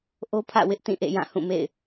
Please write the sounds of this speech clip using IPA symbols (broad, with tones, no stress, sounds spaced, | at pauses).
ʔ o˦ pʰ ä̰˦˨ w ɪ˦ ʔ t ĩ˦˨ ʔ ḛ˦˨ j ã˦˨ h ũ˦˨ m ḛ˦˨ ɪ̯